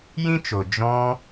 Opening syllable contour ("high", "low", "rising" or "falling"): high